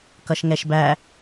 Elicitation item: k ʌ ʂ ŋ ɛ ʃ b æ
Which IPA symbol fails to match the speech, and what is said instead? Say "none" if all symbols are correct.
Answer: ʂ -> ʃ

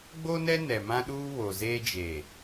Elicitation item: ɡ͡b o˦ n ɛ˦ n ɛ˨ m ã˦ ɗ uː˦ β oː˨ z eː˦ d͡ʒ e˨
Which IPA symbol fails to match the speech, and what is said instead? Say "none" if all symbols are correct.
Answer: oː˨ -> o˨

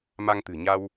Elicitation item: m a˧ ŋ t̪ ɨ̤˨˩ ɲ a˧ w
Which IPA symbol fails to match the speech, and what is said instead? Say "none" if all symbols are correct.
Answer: none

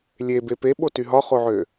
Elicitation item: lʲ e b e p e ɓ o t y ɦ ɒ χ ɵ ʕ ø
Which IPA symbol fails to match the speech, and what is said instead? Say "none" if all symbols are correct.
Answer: ɵ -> o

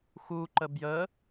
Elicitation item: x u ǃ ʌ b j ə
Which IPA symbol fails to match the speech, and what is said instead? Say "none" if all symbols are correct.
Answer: ʌ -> ə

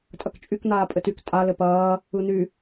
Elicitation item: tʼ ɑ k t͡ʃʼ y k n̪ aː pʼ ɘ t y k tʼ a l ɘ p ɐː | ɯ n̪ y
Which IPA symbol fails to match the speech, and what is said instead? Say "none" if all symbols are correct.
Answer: ɑ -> ɐ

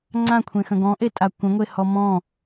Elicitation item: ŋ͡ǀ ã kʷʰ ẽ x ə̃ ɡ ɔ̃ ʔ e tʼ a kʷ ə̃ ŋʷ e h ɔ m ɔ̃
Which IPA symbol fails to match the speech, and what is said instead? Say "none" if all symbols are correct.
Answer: none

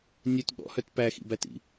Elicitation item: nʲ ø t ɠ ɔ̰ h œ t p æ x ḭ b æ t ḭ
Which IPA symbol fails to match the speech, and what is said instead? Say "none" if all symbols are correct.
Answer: none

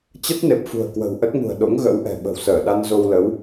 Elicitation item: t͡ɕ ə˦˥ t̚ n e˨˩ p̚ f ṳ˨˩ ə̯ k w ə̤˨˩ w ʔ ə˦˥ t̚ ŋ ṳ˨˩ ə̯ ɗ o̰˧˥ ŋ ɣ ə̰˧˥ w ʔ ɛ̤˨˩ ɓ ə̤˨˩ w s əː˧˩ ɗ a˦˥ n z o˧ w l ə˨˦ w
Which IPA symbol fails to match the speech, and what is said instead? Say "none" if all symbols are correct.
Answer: a˦˥ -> a˧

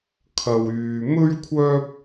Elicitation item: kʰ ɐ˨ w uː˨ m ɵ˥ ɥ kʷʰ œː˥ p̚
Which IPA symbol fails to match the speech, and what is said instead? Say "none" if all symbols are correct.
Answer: uː˨ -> yː˨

